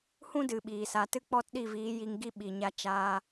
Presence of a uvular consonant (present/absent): absent